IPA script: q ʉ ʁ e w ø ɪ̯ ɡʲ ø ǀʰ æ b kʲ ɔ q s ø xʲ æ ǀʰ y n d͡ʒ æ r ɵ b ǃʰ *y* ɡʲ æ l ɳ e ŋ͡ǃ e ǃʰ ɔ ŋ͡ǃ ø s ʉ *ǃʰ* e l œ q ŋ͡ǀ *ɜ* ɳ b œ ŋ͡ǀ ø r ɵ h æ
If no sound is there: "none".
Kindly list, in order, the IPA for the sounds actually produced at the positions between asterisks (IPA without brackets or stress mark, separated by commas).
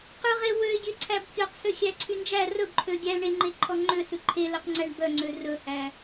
ø, ǃʰ, æ